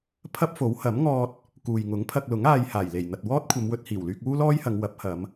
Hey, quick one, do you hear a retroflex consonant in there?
no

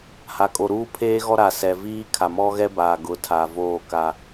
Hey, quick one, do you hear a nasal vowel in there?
no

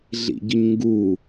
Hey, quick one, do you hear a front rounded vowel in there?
no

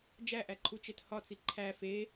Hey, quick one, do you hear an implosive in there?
no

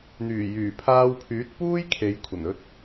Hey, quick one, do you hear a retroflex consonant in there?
no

